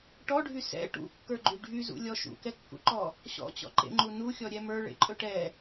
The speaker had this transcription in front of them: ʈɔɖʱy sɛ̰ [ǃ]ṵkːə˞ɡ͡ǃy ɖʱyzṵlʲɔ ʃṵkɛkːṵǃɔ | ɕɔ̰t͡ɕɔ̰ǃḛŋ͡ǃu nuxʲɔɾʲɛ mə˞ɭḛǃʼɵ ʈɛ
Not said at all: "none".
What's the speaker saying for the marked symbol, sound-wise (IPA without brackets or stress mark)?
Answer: ʈ